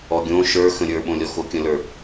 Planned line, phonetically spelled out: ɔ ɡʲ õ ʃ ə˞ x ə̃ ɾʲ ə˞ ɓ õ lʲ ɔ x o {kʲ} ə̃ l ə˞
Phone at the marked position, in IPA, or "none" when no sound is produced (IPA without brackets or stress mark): kʲ